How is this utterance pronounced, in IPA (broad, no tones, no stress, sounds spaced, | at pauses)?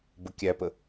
b ə kʲ æ p ə